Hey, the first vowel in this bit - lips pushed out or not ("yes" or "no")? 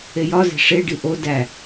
no